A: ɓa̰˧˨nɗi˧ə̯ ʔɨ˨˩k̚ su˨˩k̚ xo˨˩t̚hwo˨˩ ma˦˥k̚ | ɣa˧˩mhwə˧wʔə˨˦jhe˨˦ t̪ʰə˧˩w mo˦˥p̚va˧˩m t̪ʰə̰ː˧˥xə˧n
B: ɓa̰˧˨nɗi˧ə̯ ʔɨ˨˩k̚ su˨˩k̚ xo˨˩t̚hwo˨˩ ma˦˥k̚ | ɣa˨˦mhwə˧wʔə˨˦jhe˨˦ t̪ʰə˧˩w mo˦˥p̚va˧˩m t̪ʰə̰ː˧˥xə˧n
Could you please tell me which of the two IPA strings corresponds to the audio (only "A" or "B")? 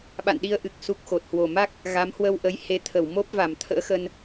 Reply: B